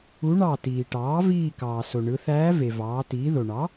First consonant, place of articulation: retroflex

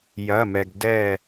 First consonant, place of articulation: palatal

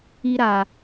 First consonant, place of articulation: alveolar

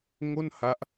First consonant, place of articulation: velar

